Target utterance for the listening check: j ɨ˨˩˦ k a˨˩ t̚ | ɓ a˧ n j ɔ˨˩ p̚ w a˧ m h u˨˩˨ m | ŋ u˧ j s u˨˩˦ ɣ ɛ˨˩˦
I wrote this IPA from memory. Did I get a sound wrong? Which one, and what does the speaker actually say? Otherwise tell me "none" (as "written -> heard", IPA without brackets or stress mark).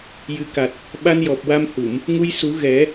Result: none